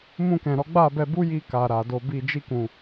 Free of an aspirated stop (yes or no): yes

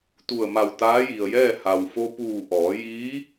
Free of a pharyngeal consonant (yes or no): yes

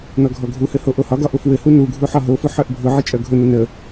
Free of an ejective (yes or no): no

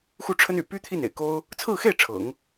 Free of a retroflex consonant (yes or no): no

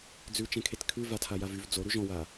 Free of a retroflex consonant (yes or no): yes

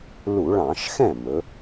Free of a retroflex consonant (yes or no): no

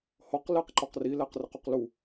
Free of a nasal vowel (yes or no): yes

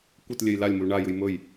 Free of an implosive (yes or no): yes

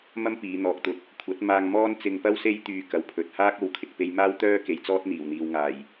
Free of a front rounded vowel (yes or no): no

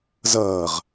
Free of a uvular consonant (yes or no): no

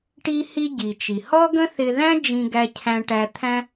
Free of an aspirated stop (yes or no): no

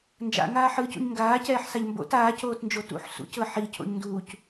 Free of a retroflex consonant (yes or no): yes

